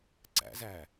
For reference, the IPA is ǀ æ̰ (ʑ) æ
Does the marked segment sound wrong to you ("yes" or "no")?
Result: yes